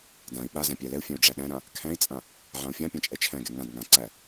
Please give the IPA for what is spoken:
d ã i̯ ɓ a z æ̃ pʲ æ l ɛ u̯ fʲ æ̃ u̯ ɖ͡ʐ æ ɗ æ̃ ɾ ã | kʰ æ̃ i̯ t͡sʼ ã | ʕ ã u̯ fʲ ã pʲ ã t͡ʃʼ ɛ t͡ʃʰ æ̃ ɡ ɛ ŋ ã d ŋ ã ǀ æ

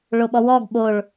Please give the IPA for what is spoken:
ɭ o ɓ ɔ w ɔ ɡ ɓ o ɭ

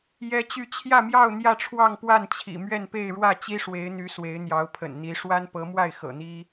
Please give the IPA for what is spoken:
j ɛ˥ t͡ɕ y˥˧ t͡ɕʰ j ä˥˧ m j ɑ˥˧ ʊ̯ n̪ j ä˥˧ ʈ͡ʂʰ w ɑ˥˧ ŋ p w a˥˩ n t͡ɕʰ ḭ˨˩ m ɥ ɛ˥˧ n p e˥˧ ɪ̯ ɻ w ä˥˩ t͡ɕ i˥ ʂ w e˧˥ ɪ̯ n̪ y˧˥ s w e˧˥ ɪ̯ n̪ j ɑ˧˥ ʊ̯ pʰ ə̰˨˩ n n̪ i˧˥ ʂ w a˥ n p ɤ˧˥ m w a˥˩ ɪ̯ x ɤ̰˨˩ n̪ i˥

